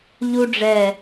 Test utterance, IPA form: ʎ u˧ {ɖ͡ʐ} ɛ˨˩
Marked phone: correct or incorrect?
correct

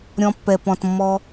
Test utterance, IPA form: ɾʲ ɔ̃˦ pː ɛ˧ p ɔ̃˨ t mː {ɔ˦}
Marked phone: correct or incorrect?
correct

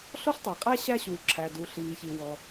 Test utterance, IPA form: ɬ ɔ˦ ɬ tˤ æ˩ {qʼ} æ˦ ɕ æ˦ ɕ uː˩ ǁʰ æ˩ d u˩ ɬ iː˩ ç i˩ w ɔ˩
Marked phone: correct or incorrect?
correct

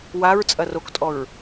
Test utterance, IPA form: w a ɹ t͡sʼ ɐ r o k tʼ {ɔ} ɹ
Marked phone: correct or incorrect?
correct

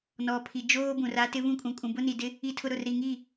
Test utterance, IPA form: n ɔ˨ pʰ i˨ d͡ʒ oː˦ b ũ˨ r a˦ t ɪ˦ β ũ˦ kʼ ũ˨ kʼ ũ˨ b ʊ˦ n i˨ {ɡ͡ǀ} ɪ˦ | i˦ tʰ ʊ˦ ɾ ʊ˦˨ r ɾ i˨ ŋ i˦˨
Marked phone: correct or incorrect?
incorrect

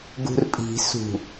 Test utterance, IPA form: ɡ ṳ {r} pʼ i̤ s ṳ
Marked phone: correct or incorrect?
correct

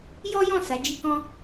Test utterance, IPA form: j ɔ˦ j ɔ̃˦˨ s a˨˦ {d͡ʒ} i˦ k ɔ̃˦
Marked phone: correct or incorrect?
correct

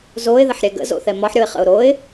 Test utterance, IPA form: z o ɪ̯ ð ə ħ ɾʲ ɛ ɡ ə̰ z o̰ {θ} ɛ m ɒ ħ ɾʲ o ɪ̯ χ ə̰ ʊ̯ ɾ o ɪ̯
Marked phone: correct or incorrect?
correct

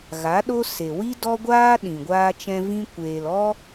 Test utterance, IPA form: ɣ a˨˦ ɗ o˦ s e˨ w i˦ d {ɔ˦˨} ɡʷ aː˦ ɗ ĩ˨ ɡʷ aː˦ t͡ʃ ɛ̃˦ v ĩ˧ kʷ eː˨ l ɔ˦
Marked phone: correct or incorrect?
incorrect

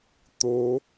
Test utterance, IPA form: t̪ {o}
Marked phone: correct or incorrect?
correct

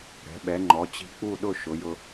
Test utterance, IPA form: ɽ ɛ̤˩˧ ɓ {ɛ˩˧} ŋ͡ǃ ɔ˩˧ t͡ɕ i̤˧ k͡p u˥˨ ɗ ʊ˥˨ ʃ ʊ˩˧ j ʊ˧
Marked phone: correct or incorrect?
correct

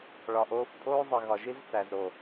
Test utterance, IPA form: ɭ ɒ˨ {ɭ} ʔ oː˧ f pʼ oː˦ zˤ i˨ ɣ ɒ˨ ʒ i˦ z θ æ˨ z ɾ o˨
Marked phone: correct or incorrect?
incorrect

